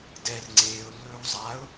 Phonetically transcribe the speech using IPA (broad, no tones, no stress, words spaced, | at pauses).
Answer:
dɛr ŋ͡ǀeːʊ̯lːɵːw zˤaʊ̯